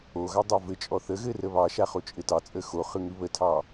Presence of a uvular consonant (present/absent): present